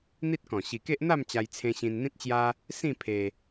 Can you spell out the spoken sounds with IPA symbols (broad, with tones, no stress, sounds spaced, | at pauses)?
n̪ i˦ t̚ k ɔ̃˨˩ ɕ i˨˩ k e˦ ʔ n̪ a˥˧ m t͡ɕ a˧ j t͡sʰ ẽ˧ ɕ ĩ˧ n n̪ ĩ˦ t̚ t͡ɕ j a˦ | s ĩ˥˧ pʰ e˧